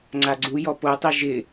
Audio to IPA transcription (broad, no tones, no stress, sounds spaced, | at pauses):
ŋ͡ǀ a ɡ͡ǀ u j ɔ p o tˤ i ʒ ɪ